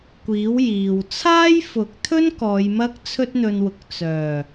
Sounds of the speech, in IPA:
kʷiː˨˥w jiː˨w t͡sʰaː˥jfʊ˨˥k̚t̪ʰɵ˥n kɔː˨˧jmɐ˥k̚ t͡sʰɵ˥t̚n̪ɵ˧nwʊ˨k̚ t͡sœː˨˩

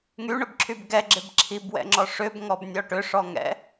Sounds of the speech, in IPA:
ŋyɳʏbǁʰyb ɡɛɡ͡ǁɪb ǁʰibwɛ̰ŋ͡ǁɔ ʂʏbŋɔbnʲɔ ʈʏʂɔŋɛ̰

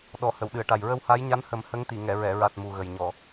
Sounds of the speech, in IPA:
ɗɔ˨˩˨ hə˨˩˨wɗɨ˨˩˨ə̯ʈa˨˩j ɹə˧wha˧˥j ɲa˧˥nhə˨˩˦m hə˧˥ŋt̪i˨˩˨ ŋɛ˨˩˨ɹɛ˨˩˨ɹa˨˩t̚ mu˨˩ɣə˨˩j ɲɔ˨˩˨

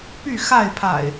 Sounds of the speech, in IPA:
py˥˨xa˥˨ɪ̯pʰa̰˨˩ɪ̯

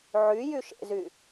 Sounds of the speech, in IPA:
ʕy jyʃḛzy

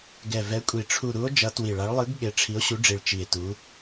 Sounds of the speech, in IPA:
ɡɛ˨˩vɛ˨˦kʷʼi˨˩ ʈ͡ʂʰu˨˩ɾu˨˦o̯ d͡ʒʌ˨˦twi˨˩ɭa˨˦ɭ lˠɯ˨˦ɡ ɠe˨˦ʈ͡ʂʰi˨˦o̯ɕu˨˦ɖ͡ʐi˨˩ɭ t͡ʃi˨˩e̯tu˨˦

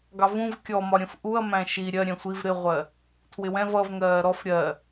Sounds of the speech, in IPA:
ɡɑvũv kʲɔmɒɾʲə̃f ʔuɐ̯mæ̃ ʃi ɾʲɜ ɾʲɛ̃sʷiv ɾɪʁʷɜ | tʰwɪwɛ̃v ʌv ŋɜːɾɔf ɾʲɜ

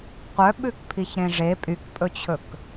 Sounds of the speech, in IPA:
qʷœɓʉkpʰiçɾẽ ʐe pʼykpʼɵt͡ɕʰɵk

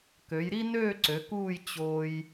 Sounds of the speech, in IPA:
kø˩˧jɾi˥nøː˥˧ ǀø˩˧kuː˥˧j t͡ɕo˧j

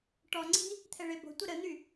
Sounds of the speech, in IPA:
ʈɔŋ͡ǀi̤ | t̪ʰɛɭebo̤tʷə ɾən̪y

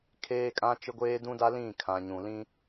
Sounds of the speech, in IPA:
kʰeː˦kʼã˦ t͡ʃɪ˦ɡʷeː˦dũ˦da˦ lĩ˦˨kʰã˨ ɲũ˨lĩ˦

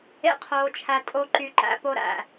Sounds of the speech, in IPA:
ḛ˦qʰoː˧t͡ʃʰæ˧ tʼo˦ǃy˧ǃæ̰˧ po˦ɾæ̰˨

